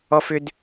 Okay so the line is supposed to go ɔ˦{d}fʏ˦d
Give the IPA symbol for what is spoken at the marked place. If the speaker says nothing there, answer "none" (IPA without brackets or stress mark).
none